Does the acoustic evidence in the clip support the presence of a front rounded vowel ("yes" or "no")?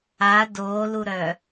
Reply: yes